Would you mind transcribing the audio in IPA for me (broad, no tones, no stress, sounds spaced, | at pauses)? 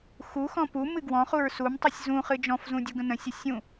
x u x ɔ̃ p u m ɨ ɡ w ɔ̃ χ u ɹ s u m tˤ ɨ sʲ z ũ χ ɨ d͡ʒ ɔ̃ f z ũ dʲ u ɡ ə̃ n ə̃ sʲ ə sʲ ũ